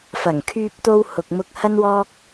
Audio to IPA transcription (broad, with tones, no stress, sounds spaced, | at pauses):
f ɐ˨˩ ŋ kʰ yː˧ p̚ t̪ o˧ w h ʊ˨ k̚ m ʊ˧ k̚ h ɐ˥ n w ɔː˥ k̚